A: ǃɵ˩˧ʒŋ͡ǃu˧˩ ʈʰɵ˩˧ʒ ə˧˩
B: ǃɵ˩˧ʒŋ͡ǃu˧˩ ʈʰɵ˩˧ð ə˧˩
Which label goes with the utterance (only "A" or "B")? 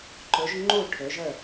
A